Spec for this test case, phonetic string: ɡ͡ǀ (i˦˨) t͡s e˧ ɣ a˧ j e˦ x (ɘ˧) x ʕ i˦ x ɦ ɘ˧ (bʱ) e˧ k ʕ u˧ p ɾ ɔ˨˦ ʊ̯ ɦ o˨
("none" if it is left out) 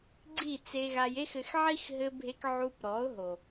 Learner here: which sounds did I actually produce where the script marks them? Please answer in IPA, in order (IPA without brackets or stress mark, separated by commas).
i˦˨, ɘ˧, bʱ